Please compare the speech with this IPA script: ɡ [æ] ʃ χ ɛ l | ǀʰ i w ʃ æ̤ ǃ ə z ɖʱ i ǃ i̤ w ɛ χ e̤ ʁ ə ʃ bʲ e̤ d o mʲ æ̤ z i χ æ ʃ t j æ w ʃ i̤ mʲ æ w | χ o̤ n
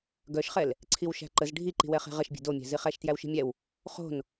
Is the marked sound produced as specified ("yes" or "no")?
no